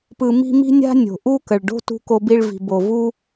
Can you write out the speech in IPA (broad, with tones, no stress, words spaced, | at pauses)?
pɯ˧mi̤˥ mi̤˥nʲa̤˥ nʲo̤˩ʔu˥kə˩ɭɖo̤˥ tṳ˧ko˧bi˧ɭvi̤˩ bo˩vu˧